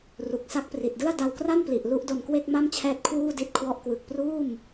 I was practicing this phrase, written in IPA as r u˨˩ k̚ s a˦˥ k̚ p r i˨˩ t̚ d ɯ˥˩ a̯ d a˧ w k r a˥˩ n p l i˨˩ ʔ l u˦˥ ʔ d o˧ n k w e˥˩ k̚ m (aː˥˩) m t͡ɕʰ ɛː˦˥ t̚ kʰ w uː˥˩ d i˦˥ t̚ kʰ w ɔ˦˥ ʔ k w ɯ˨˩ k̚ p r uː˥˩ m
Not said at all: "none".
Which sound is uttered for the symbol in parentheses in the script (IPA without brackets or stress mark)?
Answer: a˥˩